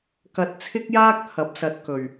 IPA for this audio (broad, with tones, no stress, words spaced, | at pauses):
kɐ˧t̚t͡sʰɪ˥k̚jaː˥k̚t̪ʰɐ˨˥p̚ sɐ˧t̚kɵ˨˩ɥ